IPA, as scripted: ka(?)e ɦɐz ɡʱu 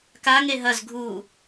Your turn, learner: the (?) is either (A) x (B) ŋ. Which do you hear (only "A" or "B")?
B